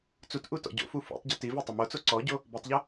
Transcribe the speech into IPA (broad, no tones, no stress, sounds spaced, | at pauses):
t͡s u t ʔ u t ɔ̰ ɟ o̰ f u f ṵ tˤ ɟ u t i v e tˤ ʊ m o t͡s o ǀ ɔ ɟ o | b i tˤ ʎ o